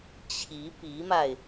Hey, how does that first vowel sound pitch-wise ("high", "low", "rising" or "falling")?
rising